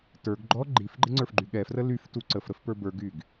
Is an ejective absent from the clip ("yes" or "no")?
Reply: yes